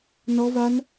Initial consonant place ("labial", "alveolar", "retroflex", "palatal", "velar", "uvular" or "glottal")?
alveolar